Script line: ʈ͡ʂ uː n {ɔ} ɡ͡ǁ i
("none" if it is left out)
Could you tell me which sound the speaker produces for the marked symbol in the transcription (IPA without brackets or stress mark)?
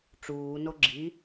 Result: o